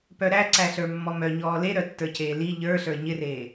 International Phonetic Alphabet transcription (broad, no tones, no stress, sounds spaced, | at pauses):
p œ ɾ æ ǀ æ ɬ ə˞ mː ɔ m œ ɲ ɔː l e ɾ œ tː ə˞ c eː l i ʎ ə˞ ɬ ə˞ ɲ ɪ r eː